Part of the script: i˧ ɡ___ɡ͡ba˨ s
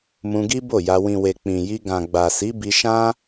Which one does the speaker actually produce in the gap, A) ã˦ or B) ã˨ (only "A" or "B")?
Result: B